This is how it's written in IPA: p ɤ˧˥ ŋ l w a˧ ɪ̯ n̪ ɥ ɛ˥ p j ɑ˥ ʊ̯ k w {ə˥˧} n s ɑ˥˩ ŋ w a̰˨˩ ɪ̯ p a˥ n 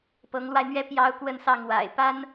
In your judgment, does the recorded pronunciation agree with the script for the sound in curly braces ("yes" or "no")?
yes